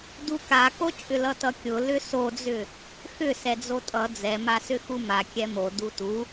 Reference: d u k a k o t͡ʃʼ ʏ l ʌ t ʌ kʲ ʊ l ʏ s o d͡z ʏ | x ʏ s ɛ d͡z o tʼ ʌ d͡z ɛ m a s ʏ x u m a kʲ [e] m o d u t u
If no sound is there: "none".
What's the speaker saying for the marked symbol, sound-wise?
ɛ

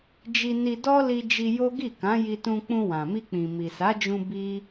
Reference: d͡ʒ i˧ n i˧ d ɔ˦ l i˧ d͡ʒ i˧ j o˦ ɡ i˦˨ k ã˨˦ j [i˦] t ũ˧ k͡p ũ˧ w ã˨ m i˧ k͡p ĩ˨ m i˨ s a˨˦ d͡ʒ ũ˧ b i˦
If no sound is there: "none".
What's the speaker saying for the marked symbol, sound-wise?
i˧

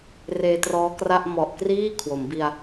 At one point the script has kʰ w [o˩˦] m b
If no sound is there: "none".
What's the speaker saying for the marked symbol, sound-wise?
o˩˦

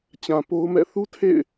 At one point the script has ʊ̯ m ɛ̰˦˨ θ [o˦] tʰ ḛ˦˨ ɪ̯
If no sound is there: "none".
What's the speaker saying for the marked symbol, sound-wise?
u˦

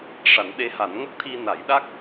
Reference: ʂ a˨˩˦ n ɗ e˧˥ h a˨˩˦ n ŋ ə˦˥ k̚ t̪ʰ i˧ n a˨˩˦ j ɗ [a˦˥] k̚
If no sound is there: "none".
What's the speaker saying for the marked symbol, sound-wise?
a˦˥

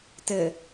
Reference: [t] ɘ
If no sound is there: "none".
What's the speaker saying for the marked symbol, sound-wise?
t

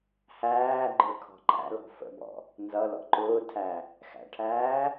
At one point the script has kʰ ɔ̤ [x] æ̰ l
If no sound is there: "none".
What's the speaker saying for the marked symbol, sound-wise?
ǃ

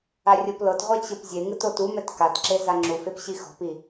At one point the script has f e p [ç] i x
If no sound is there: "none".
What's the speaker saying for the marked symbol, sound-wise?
ɕ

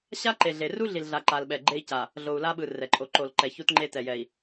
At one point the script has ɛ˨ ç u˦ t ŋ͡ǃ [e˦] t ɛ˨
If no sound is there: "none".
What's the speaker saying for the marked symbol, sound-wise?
e˦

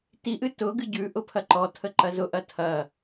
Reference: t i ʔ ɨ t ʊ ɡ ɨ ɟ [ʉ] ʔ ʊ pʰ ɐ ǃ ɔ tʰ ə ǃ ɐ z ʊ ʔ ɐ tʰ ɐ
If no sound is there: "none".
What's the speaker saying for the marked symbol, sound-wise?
ʉ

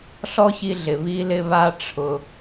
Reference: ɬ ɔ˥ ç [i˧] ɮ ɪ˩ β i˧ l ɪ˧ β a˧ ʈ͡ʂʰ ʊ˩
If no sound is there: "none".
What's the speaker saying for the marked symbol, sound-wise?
i˧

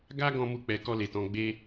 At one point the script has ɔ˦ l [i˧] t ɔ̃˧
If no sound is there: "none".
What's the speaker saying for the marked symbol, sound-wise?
e˧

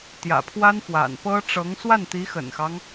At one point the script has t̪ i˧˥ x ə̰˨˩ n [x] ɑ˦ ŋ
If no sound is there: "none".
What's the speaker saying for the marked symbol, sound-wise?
x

